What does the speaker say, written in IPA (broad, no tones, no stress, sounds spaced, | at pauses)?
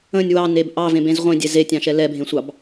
ə̃ nʲ w ɑ n e b ʔ ɑ v ẽ b ẽ z ʁʷ ẽ dʲ ɛ z e tʲ ɑ̃ ʃ ɛ l ɛ bʱ ẽ sʷ ɑ b